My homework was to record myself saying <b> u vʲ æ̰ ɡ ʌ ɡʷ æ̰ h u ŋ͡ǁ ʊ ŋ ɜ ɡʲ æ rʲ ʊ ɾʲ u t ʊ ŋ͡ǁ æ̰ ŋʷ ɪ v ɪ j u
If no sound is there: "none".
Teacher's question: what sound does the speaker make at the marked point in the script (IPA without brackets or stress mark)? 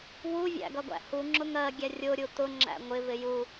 w